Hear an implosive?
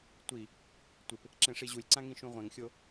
no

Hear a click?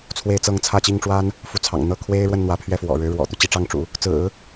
no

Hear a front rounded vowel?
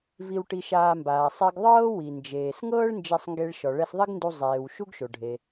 no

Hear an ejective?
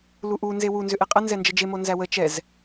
yes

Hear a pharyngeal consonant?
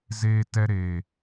no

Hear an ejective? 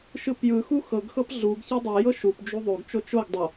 no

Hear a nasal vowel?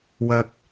no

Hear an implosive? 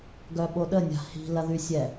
yes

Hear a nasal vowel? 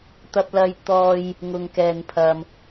no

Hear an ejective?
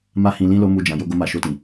no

